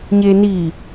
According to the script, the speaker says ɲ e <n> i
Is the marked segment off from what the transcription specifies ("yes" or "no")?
no